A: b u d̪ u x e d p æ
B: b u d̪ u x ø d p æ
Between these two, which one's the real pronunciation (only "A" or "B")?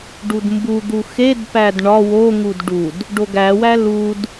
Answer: A